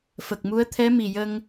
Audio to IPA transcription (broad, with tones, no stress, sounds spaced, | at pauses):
f ə˨˩ k̚ m u˧˥ ə̯ t̪ʰ ɛ˧˥ m i˨˩ j ə˧ ŋ